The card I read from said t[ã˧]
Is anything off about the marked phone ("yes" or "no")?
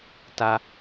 yes